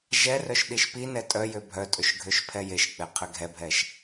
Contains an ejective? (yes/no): yes